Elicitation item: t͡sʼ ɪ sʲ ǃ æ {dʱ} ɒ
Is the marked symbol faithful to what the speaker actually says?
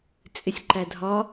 yes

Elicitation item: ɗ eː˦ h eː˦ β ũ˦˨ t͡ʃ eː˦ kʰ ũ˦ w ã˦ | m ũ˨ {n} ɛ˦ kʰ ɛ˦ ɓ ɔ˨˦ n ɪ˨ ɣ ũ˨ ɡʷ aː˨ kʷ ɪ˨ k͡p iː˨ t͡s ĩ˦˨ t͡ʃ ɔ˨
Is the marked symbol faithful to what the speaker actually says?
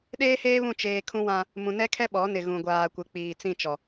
yes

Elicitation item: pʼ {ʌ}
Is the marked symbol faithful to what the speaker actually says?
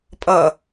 yes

